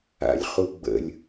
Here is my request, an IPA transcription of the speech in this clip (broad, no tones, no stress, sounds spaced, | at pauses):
a̰ lʲ χ u ɡ͡b ə̰ lʲ